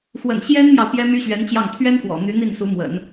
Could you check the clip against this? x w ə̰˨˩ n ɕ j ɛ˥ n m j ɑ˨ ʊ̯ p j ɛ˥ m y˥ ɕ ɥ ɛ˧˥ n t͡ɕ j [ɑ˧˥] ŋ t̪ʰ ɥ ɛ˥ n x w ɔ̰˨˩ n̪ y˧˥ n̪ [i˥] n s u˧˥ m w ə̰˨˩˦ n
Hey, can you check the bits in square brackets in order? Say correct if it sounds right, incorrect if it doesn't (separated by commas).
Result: incorrect, incorrect